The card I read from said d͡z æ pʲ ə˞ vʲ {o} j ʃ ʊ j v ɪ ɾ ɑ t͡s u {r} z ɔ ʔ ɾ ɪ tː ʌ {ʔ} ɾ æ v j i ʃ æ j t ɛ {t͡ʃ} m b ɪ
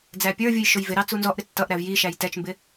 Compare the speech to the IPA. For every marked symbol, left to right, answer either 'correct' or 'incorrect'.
incorrect: u, incorrect: n, correct, correct

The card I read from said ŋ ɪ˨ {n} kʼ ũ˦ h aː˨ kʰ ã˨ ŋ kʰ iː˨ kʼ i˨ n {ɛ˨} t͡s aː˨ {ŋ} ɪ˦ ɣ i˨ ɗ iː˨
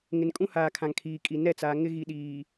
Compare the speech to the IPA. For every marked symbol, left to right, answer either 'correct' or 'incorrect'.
correct, incorrect: ɛ˦˨, correct

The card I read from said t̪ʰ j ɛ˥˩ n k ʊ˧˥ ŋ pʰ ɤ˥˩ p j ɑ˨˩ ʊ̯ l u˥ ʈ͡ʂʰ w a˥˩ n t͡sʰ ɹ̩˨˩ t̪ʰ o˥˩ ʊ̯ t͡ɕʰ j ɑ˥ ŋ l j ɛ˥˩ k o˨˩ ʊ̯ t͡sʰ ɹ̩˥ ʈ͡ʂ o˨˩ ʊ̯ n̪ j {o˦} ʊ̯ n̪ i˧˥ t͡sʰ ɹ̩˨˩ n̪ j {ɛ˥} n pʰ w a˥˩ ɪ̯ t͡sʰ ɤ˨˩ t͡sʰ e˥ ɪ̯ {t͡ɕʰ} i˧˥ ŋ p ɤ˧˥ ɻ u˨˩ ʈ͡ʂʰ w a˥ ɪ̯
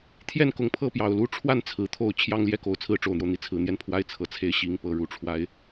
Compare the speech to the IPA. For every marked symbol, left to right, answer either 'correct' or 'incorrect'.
correct, incorrect: ɛ˥˧, incorrect: ɕ

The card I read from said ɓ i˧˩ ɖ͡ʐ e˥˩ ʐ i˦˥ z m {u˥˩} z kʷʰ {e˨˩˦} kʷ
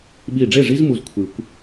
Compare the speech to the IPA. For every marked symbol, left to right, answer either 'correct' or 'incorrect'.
correct, incorrect: ɨ˨˩˦

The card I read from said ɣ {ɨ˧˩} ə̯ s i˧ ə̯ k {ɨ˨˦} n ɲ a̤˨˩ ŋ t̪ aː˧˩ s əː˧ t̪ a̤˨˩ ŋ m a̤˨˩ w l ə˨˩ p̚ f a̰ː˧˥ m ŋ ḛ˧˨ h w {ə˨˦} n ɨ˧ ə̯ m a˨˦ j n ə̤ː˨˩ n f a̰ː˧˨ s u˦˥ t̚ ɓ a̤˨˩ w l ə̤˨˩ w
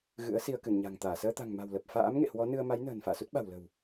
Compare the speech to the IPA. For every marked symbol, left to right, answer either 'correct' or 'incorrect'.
incorrect: ɨ̰˧˥, incorrect: ɨ˧˩, incorrect: ɔ˨˦

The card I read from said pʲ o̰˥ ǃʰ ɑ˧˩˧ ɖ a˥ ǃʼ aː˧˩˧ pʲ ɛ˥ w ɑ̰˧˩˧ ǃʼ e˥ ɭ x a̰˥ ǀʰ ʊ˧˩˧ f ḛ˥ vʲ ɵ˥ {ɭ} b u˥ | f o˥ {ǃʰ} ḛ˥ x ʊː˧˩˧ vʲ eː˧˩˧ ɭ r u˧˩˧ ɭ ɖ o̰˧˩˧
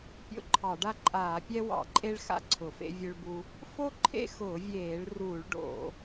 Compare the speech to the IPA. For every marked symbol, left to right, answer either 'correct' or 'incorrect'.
correct, correct

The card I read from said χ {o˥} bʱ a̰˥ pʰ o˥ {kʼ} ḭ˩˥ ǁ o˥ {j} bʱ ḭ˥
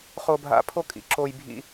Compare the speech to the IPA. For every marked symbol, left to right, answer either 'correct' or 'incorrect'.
correct, correct, correct

